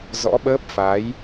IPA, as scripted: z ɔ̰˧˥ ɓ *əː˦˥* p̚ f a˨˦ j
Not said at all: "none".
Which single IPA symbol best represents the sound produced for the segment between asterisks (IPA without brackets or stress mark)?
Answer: əː˦˥